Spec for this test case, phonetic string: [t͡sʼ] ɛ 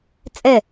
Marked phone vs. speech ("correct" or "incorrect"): correct